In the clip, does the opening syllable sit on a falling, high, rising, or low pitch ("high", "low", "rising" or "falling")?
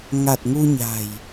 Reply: low